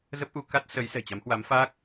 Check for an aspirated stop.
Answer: absent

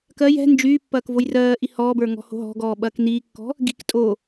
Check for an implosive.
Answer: present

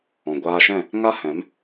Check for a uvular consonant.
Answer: absent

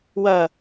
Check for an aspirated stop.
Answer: absent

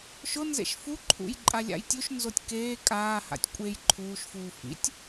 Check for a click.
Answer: present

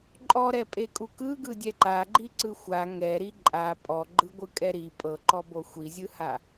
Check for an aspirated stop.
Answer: absent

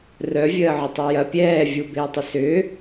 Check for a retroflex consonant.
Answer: absent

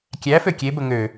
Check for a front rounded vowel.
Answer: present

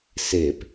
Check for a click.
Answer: absent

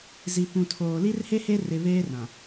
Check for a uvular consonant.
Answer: absent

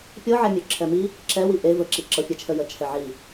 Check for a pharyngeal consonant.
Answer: present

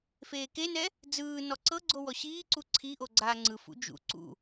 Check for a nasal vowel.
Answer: absent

